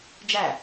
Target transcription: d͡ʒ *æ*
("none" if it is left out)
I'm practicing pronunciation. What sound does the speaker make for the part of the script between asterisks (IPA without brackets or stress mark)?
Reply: æ